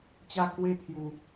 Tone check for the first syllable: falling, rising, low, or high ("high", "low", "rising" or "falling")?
high